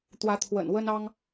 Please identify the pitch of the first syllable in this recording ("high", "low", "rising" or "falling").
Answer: rising